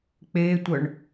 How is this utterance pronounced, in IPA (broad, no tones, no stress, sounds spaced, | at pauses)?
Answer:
k͡p eː tʷ œ ɳ